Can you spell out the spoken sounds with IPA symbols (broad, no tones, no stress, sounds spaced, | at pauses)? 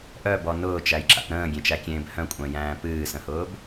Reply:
ʔ œ b ɔ n ʊː t͡ʃ æ j ǁ a̰ p ɾ ə̃ː ɡʲ ẽ t͡ʃ æ kʲ ẽː b h œ̃ kʷʼ œ̃ j æ̃ː p ɨː s ə̃ h ʊː b